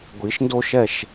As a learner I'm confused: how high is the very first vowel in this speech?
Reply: high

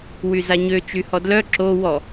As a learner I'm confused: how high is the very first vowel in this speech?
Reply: high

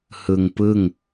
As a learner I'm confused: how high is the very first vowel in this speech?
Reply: high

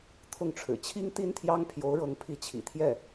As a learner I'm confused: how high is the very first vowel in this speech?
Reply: high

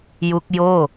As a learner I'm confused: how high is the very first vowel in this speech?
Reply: high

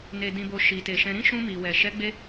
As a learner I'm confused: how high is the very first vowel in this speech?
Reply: mid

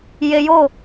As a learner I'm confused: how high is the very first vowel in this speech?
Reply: mid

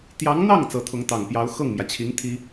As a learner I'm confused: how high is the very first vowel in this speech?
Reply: low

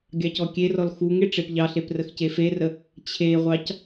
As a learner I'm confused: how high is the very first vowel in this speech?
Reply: low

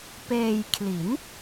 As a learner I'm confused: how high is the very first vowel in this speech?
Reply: mid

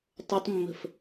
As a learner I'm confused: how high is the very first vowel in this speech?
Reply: mid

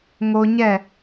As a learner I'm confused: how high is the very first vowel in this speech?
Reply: mid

